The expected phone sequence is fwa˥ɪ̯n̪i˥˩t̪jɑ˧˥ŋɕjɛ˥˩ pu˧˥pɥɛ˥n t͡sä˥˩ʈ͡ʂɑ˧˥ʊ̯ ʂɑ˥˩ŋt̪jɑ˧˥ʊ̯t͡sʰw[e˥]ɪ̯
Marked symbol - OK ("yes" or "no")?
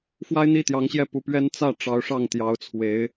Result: no